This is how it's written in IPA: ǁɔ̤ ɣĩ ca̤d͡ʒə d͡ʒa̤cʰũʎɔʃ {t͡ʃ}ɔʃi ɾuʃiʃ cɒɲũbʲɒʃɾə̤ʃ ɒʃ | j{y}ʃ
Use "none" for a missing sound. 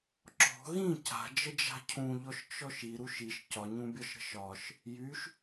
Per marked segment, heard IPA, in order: t͡ʃ, y

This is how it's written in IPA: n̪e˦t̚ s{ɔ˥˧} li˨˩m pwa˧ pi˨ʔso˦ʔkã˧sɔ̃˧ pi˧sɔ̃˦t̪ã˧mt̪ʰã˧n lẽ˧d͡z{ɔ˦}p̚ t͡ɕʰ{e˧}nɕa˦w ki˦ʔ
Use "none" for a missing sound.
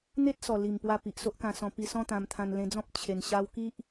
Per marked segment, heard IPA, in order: ɔ˨˩, ɔ̃˦, e˧

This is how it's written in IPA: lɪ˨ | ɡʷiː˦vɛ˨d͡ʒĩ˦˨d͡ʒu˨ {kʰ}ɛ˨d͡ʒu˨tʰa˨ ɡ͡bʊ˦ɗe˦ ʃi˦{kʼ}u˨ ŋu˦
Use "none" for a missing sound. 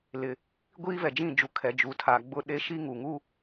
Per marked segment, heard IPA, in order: kʰ, ŋ

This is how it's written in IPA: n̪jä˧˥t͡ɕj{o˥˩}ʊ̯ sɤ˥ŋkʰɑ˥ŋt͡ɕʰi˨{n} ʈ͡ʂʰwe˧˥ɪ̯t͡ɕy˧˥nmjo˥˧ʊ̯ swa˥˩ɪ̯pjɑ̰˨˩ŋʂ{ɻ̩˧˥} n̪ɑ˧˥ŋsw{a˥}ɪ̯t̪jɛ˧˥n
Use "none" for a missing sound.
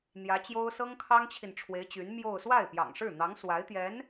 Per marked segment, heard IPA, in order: o˥, n, ɻ̩˥˩, a˧˥

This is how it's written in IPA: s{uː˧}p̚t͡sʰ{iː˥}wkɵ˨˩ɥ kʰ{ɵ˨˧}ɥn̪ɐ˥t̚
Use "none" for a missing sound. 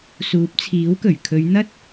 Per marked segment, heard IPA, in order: uː˨˥, iː˨˥, ɵ˨˧

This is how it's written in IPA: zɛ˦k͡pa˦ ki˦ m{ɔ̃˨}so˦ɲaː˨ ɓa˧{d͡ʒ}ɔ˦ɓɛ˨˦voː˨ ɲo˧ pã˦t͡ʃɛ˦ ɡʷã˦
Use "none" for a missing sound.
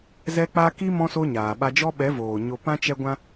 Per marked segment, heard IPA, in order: ɔ̃˦, d͡ʒ

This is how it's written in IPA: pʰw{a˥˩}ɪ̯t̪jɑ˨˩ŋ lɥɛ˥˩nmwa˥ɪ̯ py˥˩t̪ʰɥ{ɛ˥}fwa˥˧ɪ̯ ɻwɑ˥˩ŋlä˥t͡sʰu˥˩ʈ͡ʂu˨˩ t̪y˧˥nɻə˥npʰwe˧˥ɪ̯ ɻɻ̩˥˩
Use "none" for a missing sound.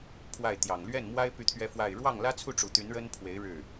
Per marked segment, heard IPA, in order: a˥˩, ɛ˥

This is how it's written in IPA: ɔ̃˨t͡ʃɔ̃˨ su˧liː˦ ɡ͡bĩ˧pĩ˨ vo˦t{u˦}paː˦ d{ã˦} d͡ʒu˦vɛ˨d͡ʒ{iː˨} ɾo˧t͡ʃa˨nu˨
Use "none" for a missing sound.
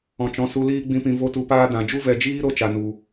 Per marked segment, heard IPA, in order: u˧, ã˨, iː˦

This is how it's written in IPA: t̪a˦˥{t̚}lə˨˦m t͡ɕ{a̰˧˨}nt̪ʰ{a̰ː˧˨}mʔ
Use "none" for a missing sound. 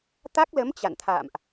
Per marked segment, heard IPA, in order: k̚, a̰˧˨, a̰ː˧˨

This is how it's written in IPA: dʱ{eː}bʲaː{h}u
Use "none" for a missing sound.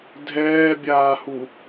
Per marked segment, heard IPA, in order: ɛː, h

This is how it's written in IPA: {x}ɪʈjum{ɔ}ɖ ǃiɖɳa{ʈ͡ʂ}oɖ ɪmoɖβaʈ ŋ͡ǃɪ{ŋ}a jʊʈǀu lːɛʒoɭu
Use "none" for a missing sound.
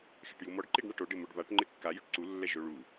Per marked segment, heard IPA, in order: x, ɔ, ʈ, kː

